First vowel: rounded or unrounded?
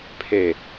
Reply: unrounded